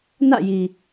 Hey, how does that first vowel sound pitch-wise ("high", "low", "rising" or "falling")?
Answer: falling